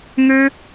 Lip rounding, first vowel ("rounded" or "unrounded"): rounded